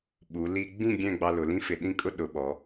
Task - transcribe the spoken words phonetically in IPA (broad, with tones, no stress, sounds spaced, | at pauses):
ɓ u˩˧ l i˧ ɡ͡b ĩ˥˧ ɡʲ ɛ̃˥˧ ɡ͡b ɑ˧ l ʊ˩˧ l ĩ˥ f ɪ˧˩ ɗ ĩ˥˧ kʼ ʊ˥ ɗ ʊ˩˧ ɓ ɔ˩˧